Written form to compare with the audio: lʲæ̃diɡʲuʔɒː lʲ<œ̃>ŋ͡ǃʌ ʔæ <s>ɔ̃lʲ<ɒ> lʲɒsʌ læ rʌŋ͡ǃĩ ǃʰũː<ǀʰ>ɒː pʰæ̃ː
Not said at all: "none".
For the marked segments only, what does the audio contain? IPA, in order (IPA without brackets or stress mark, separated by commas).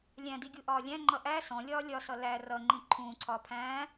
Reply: æ̃, s, ɒː, ǀʰ